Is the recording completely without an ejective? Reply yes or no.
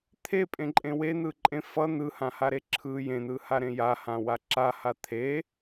no